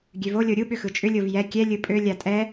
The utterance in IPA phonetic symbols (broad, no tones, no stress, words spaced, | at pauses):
ɡʲøvo lʲoɾʲu ɓʏxɯt͡ʃʼʏ lʲovjɛ kʲɛ lʲɯpʼø lʲatʼɛ